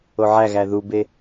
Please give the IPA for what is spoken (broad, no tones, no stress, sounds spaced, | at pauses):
o ʕ æ ɣ æ ð u b e